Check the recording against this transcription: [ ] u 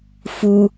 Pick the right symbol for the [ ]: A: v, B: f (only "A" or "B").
B